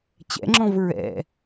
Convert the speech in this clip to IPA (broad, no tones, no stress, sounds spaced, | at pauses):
t͡ɕ ɛ̰ ŋ͡ǁ ɔ̃ v ɹ ɛ̰